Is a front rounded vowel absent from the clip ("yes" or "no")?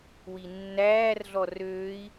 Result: no